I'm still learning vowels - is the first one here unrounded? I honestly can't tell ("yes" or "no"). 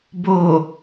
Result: no